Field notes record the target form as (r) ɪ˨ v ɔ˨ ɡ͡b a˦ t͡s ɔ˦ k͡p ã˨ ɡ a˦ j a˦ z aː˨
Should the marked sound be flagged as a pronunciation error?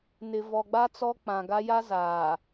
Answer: yes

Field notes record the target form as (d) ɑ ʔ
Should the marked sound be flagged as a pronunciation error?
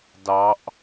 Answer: no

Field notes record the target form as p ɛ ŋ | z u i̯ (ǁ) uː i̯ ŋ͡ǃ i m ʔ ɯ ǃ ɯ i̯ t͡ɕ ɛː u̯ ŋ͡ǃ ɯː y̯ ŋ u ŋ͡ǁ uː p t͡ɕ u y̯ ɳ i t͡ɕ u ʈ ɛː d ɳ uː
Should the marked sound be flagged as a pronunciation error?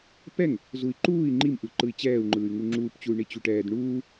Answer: yes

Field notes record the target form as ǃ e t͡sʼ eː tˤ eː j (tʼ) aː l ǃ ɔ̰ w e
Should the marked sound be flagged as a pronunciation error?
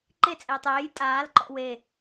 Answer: no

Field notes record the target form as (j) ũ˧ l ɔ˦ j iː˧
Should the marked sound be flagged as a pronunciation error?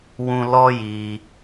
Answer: yes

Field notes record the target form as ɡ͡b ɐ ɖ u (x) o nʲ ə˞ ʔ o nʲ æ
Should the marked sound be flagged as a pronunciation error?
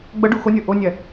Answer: no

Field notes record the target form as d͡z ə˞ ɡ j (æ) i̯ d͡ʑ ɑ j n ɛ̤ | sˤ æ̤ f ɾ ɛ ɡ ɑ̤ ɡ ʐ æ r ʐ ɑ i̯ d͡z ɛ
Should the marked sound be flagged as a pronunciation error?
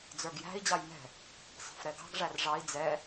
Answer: yes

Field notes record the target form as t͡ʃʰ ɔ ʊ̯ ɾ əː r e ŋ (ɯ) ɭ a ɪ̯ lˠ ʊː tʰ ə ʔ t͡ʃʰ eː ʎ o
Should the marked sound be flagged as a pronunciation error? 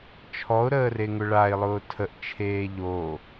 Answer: yes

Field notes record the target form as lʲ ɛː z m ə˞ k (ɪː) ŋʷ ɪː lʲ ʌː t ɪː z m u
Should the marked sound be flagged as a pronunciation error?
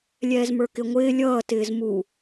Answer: yes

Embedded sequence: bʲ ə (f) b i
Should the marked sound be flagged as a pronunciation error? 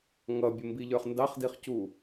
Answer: yes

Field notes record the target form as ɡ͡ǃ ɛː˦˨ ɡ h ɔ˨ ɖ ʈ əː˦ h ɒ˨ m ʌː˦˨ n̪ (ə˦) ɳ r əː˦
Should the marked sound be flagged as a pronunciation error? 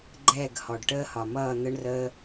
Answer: no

